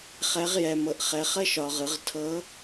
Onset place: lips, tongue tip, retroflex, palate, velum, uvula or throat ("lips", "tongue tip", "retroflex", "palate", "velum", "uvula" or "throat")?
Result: uvula